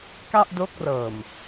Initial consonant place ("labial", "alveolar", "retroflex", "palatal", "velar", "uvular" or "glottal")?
velar